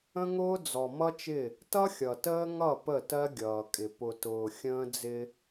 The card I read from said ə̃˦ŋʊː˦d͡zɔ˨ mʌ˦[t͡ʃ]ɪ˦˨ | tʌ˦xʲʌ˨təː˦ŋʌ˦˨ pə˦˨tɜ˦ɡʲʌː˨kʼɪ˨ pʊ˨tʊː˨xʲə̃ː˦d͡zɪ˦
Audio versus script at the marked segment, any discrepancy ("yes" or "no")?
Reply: no